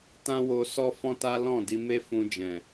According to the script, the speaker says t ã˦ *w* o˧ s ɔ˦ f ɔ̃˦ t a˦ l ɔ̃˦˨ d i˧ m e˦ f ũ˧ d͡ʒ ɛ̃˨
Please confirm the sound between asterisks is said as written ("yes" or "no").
yes